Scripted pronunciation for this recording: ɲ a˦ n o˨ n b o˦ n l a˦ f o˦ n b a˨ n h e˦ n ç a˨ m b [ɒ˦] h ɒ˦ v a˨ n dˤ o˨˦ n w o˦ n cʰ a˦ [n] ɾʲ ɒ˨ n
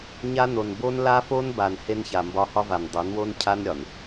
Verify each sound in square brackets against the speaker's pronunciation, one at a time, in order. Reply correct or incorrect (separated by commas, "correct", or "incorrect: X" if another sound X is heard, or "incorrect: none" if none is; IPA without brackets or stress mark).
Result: correct, correct